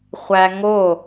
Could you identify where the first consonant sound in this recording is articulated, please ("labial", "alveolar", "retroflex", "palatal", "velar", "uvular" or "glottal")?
uvular